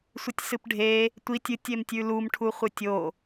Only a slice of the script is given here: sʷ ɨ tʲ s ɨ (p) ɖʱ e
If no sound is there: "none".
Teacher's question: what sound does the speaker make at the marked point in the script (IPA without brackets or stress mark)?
p